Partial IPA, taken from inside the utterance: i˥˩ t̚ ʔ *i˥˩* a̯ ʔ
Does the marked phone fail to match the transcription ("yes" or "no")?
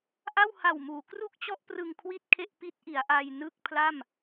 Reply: yes